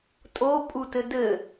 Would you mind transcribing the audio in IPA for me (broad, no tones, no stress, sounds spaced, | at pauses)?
tʼ o pʼ u t ɘ d ɘ